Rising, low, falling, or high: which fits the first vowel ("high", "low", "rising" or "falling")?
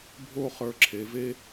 falling